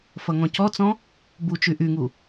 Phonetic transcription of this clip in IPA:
f ʌ ŋ ɔ̃ c ɔ t͡s ɔ̃ | b u t͡ʃ y ʔ y ŋ u

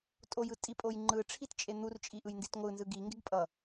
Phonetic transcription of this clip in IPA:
tʼ o j ɯ tʼ i pʼ o j ŋ͡ǃ ɯ ʈ͡ʂʰ i t t͡ʃʼ e n̪ u r t͡ʃʼ i ʔ ɯ j n d i t ŋʷ ɯ n z ɯ ɡ i ŋ ɡ e ɡ pʼ ʌ

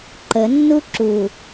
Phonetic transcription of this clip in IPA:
ǃ ə nː u ǁ u

